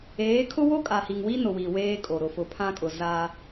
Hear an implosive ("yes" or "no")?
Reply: no